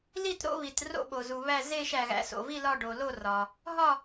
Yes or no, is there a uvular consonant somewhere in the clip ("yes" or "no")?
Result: no